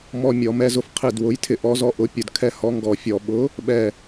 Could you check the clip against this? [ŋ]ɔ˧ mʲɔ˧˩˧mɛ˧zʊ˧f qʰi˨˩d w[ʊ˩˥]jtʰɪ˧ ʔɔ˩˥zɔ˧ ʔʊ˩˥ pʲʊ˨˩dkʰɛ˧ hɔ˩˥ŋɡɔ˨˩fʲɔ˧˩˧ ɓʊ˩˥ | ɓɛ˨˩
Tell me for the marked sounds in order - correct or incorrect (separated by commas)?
incorrect, correct